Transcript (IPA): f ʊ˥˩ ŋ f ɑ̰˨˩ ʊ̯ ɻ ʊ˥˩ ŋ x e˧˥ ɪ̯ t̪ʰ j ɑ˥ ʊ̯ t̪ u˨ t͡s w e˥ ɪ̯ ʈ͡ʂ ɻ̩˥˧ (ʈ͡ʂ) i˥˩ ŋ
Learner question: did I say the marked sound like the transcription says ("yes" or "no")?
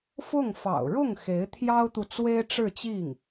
no